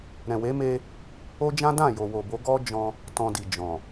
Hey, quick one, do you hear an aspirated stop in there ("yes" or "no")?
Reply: no